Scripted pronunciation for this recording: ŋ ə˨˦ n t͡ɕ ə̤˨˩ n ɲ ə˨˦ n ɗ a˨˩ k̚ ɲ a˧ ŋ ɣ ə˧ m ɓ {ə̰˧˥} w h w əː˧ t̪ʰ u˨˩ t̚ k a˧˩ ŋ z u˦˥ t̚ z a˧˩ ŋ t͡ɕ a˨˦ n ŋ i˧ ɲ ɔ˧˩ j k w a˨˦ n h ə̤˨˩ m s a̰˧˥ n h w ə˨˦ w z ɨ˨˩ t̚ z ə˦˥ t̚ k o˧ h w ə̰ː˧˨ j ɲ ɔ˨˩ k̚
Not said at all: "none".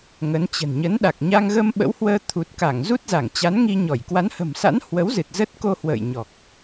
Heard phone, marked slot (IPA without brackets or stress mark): ə̰˧˥